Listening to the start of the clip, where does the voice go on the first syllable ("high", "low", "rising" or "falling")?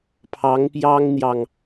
rising